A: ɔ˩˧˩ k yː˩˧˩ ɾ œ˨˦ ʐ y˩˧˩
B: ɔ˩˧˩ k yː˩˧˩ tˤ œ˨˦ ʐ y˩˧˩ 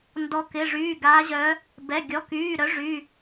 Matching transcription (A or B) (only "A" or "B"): A